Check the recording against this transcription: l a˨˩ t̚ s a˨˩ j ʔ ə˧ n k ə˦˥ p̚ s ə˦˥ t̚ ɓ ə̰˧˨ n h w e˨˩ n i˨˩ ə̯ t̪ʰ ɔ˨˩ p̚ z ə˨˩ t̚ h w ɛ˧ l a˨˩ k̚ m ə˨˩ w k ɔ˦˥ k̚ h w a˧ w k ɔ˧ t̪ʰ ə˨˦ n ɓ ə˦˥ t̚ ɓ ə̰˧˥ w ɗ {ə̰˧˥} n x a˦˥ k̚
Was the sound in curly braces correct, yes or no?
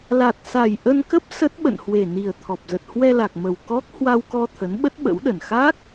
no